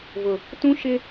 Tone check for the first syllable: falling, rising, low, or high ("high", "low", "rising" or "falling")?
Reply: low